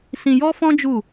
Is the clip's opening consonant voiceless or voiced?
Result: voiceless